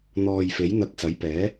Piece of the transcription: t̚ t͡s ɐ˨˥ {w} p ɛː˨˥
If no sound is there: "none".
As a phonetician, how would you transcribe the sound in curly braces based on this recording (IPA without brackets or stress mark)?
j